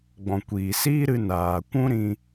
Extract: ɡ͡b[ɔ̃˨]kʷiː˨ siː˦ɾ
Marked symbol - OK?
yes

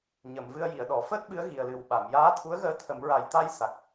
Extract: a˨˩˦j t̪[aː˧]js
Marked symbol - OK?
no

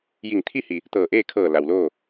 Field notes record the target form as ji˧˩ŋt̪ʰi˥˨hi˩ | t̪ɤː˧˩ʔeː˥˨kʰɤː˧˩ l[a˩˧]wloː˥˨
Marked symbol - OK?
no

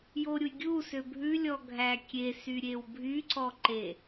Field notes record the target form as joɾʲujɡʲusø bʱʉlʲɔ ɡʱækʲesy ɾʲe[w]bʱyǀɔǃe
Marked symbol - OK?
yes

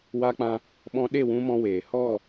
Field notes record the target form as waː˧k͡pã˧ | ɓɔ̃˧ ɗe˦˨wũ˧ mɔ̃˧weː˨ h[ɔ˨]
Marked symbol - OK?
no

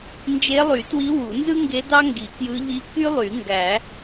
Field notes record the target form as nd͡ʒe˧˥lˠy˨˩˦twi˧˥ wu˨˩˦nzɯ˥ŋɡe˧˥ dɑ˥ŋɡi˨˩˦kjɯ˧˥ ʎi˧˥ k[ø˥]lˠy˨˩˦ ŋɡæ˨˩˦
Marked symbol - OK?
no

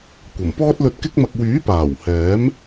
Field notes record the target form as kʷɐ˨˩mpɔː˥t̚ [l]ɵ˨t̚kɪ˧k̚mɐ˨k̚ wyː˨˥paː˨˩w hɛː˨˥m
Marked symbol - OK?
yes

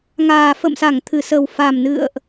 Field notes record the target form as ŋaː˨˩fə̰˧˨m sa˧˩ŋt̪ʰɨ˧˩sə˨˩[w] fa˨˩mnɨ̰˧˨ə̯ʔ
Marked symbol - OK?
yes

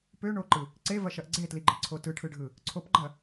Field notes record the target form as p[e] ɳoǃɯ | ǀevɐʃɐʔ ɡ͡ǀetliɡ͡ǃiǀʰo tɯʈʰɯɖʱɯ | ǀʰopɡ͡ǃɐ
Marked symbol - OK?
no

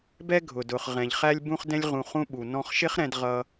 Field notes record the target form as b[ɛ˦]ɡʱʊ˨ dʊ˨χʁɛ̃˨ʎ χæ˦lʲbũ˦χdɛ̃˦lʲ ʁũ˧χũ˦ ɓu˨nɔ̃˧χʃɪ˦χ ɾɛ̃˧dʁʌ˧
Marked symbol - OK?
yes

